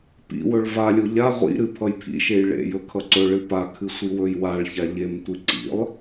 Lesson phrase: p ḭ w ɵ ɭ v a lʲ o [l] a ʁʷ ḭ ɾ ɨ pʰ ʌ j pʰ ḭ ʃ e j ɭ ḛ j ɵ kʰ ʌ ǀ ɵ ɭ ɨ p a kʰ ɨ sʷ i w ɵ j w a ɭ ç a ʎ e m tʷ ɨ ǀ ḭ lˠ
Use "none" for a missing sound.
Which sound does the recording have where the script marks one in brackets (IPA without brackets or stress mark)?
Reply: ʎ